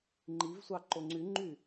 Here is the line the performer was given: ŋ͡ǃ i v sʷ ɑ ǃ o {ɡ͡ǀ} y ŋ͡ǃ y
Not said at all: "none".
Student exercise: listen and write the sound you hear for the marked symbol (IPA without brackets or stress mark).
ŋ͡ǀ